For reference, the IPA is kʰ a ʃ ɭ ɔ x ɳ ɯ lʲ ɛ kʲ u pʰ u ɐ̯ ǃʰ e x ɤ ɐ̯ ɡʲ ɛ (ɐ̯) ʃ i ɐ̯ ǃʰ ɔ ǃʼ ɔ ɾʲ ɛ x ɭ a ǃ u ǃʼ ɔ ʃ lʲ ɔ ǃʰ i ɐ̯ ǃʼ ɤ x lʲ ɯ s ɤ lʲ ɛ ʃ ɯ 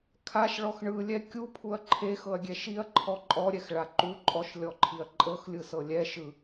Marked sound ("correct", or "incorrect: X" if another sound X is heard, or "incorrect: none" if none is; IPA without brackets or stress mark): incorrect: none